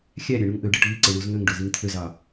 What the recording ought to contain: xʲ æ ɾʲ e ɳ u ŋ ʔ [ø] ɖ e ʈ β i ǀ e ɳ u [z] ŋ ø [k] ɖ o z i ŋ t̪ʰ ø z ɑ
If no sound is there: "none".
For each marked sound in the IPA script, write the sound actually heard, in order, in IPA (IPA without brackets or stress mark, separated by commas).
ø, z, ŋ